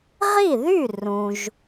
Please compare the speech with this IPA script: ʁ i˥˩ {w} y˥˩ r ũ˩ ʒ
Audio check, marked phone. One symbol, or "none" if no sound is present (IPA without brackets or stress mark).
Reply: ð